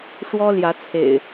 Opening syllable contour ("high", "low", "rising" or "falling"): high